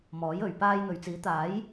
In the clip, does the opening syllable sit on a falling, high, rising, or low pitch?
rising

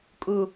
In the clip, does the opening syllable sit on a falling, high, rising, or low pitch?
low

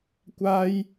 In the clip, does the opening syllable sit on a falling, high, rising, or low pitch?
high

